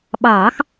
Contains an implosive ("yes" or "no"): yes